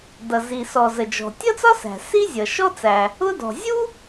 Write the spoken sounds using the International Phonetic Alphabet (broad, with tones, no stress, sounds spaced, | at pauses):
d ʌ˩ z i˩ s ɔ˩ z ə˩ d͡ʒ ɔ̤˩ tʲ ʌ˥ t͡s ɒ˥ s æ̤˩ s i˥ zʲ ʌ˩ ʃ ɔ˥ t͡s æ˩ | ʊ˥ d ɔ̤˩ zʲ u˥